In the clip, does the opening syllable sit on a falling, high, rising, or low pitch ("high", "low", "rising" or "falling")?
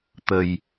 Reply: low